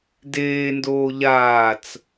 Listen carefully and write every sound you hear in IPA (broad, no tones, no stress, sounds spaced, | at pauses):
d eː n d oː ʎ aː t͡s